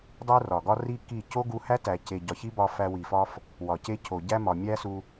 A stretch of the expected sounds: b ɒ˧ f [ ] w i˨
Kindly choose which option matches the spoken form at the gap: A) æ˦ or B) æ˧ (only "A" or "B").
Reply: B